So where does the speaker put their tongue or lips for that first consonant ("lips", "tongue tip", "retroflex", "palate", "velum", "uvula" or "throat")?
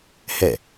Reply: throat